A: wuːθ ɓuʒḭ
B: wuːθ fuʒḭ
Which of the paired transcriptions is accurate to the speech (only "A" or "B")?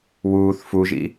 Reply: B